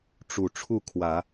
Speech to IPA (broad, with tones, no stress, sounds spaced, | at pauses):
ʈ͡ʂ u˨˩ ʈ͡ʂʰ u˥˩ kʰ w ä˨˩˦